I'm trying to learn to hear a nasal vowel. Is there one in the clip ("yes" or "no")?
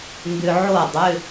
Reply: no